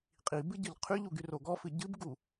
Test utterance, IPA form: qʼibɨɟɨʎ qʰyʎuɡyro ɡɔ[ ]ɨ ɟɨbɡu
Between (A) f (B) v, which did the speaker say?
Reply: A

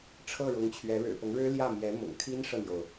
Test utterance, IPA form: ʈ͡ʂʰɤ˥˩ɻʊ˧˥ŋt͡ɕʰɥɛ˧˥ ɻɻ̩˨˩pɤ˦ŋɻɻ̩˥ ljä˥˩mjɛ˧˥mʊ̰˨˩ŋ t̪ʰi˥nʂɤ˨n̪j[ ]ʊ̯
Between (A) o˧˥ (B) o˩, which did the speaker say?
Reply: B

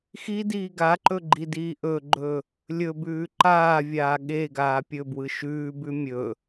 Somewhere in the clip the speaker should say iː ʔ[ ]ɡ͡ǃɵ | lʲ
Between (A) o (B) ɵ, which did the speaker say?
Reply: B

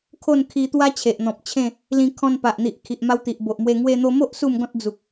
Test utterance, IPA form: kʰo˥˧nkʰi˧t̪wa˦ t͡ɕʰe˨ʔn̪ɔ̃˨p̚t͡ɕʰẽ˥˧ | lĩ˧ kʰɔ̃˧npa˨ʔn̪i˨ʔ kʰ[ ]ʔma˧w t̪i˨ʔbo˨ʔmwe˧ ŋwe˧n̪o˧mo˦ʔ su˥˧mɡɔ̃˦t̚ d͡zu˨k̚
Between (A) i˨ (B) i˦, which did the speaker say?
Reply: A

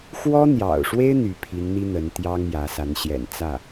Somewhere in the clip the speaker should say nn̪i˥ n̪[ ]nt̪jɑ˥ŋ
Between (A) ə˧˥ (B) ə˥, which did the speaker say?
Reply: A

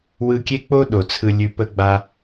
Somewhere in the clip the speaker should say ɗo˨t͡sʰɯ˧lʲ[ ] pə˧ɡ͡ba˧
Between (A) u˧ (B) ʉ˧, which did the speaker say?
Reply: B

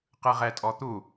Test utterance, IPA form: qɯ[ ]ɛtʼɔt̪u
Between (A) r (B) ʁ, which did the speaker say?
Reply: B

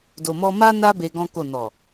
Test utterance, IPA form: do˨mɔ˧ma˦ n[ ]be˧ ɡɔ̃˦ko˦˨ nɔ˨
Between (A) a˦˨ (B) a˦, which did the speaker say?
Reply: B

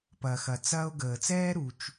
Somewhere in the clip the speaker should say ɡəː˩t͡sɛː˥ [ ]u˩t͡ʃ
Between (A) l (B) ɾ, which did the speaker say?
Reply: B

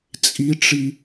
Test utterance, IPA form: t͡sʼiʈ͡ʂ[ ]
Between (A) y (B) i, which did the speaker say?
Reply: B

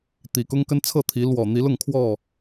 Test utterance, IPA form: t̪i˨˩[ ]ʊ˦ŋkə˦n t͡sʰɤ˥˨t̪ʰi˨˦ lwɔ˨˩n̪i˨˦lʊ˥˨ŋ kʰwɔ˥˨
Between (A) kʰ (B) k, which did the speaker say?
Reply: B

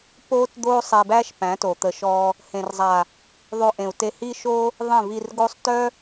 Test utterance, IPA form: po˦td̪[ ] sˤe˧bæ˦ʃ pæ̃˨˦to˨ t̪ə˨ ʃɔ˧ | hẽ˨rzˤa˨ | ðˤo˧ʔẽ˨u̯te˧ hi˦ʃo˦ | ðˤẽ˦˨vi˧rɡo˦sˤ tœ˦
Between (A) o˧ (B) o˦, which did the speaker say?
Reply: B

